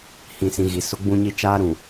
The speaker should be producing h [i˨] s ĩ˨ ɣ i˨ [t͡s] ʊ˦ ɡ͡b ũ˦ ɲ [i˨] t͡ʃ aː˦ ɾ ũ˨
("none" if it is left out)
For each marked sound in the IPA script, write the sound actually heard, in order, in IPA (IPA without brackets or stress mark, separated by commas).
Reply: ĩ˨, s, i˦